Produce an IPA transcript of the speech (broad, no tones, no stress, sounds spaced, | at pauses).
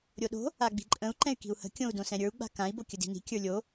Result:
ɾʲ o ɗ o̤ | a ɡ͡b i̤ ǃʼ ə̃ u̯ ǃ ɛ̃ y̯ k i̤ u̯ h ə̤ kʲ õ u̯ d õ s ɛ̃ ɾʲ ə˞ u̯ ɡ͡b a̤ k ã i̯ b o kʲ ə d i̤ n i̤ kʲ ə˞ lʲ o